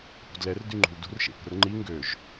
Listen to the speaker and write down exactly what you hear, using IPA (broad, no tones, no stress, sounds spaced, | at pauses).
p ṳ d l ɛ r d y ŋ͡ǃ ṳ l d ṳ r ʃ ḛ p ə̤ r ŋ͡ǃ i ŋ ɡ ø ʒ